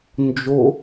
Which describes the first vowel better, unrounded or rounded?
rounded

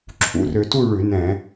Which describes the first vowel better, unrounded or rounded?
rounded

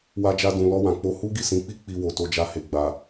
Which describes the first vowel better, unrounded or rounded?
unrounded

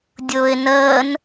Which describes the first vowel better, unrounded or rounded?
rounded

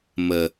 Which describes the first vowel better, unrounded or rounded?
unrounded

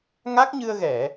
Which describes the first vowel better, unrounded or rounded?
unrounded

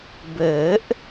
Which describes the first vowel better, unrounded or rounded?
unrounded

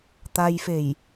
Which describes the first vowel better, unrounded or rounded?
unrounded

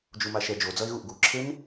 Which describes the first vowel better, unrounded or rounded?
rounded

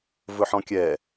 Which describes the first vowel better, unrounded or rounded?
rounded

